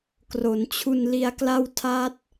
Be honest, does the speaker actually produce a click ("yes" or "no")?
no